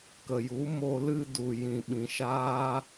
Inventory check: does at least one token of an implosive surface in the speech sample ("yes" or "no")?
yes